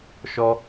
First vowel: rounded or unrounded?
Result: rounded